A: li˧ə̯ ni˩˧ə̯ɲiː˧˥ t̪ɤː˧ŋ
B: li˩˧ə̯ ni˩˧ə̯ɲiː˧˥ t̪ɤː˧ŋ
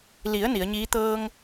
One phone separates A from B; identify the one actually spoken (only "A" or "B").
B